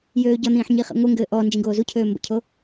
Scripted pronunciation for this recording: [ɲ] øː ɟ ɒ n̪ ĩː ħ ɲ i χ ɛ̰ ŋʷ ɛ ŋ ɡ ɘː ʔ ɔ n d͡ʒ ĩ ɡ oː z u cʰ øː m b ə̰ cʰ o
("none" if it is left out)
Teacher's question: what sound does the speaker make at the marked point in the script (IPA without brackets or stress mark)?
j